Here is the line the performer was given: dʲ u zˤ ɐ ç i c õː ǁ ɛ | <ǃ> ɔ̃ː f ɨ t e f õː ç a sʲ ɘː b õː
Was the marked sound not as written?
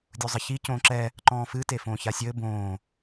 no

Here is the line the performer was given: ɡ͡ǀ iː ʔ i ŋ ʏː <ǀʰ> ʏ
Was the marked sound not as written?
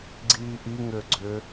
yes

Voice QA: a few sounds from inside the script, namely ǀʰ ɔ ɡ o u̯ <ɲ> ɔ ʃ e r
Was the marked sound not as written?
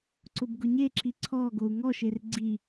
yes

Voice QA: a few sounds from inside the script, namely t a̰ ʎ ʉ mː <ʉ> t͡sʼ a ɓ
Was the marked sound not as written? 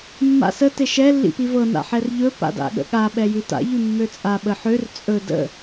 yes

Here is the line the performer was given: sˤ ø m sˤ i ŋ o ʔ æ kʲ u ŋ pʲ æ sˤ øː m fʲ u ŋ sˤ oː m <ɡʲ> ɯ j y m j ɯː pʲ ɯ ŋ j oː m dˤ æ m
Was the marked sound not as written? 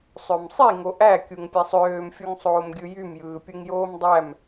no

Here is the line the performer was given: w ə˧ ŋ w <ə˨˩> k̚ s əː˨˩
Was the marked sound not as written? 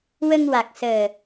yes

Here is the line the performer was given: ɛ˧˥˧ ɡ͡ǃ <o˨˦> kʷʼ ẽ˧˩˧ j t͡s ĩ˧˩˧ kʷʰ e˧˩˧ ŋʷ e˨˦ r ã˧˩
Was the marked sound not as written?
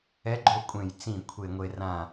yes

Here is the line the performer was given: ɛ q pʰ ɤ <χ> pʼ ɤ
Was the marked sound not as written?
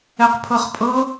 no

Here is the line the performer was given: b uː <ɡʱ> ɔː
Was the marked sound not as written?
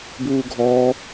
no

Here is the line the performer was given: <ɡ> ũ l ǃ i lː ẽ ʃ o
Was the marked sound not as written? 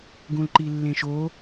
no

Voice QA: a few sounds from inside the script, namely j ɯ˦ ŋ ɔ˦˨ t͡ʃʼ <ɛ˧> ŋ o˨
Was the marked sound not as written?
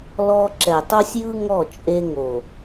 yes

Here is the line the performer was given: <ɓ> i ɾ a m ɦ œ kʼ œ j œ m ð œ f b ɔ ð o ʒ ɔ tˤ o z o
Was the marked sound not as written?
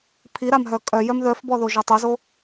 yes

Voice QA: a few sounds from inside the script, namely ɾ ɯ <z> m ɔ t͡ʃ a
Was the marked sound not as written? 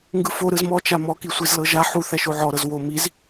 no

